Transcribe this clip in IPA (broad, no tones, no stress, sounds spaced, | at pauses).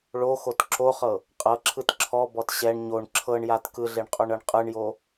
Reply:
ɭ o x o t ǁ o χ ɤ | qʼ ɤ ǁʰ ɯ t ǁʰ ɔ b ɔ t ɕ ɛ ɳ ɲ o ɳ ǁʰ ɤ ɳ j a t k ɯ ɮ e ɳ qʼ o ɳ ɤ ɳ qʼ ɯ ɳ j o